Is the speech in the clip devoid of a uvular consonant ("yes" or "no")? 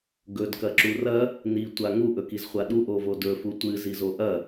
no